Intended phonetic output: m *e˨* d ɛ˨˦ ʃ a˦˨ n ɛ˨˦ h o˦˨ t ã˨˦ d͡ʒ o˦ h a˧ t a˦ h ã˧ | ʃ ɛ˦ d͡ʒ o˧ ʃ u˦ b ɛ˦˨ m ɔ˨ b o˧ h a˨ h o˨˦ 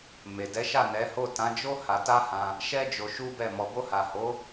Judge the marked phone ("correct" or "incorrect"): correct